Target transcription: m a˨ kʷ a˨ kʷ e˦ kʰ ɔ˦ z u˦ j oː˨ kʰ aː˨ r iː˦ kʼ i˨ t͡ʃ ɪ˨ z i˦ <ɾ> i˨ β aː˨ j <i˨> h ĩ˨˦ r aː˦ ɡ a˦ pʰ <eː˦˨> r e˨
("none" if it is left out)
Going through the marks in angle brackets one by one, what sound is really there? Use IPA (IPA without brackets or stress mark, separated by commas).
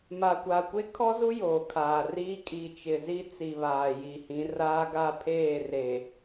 t͡s, i˨, eː˦˨